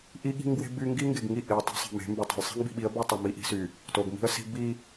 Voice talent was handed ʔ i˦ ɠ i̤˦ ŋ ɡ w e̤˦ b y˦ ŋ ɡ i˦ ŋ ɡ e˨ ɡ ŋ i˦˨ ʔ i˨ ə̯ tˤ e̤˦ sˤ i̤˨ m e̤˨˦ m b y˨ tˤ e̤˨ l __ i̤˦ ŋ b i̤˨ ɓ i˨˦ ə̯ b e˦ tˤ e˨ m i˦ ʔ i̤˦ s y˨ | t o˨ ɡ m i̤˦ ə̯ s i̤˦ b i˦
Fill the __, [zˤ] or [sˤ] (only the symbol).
sˤ